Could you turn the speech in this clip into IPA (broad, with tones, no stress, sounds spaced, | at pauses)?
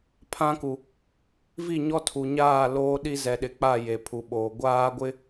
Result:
pʰ ã˦ k u˨ | v i˦˨ ɲ ɔ˦ tʰ u˨ ɲ aː˦˨ l oː˦ ɗ i˦ z ɛ˨ ɗ ɪ˨ k͡p a˦˨ j e˨ pʰ u˨ ɓ oː˨ ɡʷ aː˦ ɡʷ ɪ˦